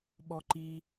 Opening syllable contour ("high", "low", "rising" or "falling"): high